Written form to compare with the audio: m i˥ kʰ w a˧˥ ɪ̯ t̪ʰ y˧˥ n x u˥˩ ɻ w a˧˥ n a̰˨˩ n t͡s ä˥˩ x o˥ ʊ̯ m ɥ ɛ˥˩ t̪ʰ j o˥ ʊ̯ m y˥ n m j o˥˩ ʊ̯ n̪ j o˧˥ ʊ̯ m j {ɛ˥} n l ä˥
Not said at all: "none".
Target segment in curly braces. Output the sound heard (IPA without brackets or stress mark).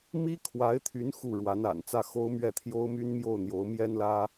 ɛ˥